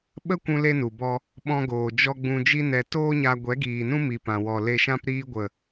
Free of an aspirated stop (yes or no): yes